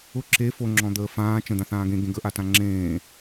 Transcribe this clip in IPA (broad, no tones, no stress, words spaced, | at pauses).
ʊ ǁe foŋ͡ǁɔ̃d̪əː fãː t͡ʃə̃ d̪ãθãːɡẽ ɡẽɡəʔatã ŋ͡ǁẽː